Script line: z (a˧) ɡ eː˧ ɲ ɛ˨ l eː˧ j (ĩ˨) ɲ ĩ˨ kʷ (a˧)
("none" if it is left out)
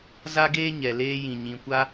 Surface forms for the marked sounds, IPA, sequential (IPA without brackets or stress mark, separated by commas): a˧, ĩ˨, a˧